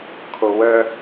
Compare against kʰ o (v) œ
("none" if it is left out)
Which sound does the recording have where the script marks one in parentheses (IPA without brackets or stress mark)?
w